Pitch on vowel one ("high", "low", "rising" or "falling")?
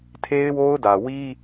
high